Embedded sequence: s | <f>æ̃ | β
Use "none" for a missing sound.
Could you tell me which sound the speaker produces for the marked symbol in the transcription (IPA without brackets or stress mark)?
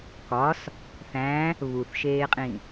θ